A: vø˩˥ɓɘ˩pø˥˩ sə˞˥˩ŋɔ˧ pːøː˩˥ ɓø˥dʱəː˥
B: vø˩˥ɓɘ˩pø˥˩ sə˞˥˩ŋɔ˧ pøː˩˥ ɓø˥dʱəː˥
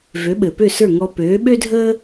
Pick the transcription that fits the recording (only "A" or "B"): B